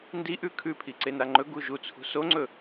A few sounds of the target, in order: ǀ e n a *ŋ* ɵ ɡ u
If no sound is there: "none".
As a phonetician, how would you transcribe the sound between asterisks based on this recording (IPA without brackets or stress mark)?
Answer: ŋ͡ǃ